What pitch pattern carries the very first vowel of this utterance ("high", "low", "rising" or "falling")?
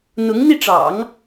rising